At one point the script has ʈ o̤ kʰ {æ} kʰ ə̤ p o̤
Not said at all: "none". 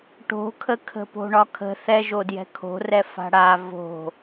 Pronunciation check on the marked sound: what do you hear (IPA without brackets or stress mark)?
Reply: ə